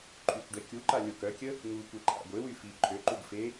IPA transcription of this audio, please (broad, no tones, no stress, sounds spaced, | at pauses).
ǃʰ y kʷ ɖ ɛ kʲ u ǃ a lʲ o k œ kʲ ə | ŋ u kʷ e ǃʰ a̰ ɡʷ e w y f i ǃʰ ø ǃ u ɡ f e